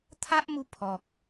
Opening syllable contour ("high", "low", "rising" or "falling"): high